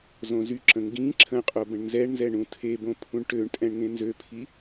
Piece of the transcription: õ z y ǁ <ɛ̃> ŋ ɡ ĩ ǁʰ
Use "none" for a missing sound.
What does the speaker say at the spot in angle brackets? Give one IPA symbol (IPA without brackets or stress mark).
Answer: ə̃